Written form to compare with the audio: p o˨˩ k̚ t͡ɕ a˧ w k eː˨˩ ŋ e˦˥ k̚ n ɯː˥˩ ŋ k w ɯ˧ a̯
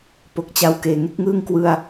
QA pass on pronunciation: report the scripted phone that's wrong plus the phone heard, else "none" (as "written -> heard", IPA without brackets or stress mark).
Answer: n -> ŋ